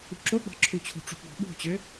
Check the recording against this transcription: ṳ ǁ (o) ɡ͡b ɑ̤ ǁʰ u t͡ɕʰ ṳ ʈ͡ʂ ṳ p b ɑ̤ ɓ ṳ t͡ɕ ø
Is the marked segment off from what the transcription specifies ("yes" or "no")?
no